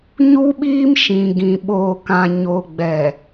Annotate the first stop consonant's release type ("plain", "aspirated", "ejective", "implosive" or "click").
implosive